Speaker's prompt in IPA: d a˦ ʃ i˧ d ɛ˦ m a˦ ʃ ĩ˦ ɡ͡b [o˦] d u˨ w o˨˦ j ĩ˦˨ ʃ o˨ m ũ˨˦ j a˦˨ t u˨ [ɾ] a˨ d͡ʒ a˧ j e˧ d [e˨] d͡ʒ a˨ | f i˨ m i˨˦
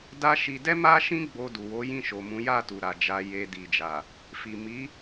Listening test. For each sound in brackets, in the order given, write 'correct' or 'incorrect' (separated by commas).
incorrect, correct, incorrect